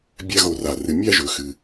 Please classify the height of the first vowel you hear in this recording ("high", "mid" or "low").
low